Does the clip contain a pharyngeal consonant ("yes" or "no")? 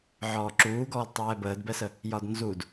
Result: yes